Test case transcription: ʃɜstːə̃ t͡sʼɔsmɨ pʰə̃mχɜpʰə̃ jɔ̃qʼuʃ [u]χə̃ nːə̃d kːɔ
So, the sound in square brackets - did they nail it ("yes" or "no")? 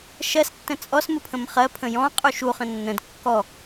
yes